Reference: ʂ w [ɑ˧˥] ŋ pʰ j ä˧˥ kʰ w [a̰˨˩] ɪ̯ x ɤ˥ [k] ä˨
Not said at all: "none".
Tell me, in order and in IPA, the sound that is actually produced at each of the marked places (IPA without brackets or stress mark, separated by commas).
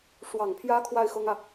ɑ˨˩, a˥˩, ŋ